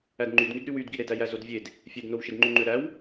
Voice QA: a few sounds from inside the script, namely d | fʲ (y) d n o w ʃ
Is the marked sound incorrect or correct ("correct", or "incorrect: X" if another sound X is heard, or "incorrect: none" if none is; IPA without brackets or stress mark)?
incorrect: e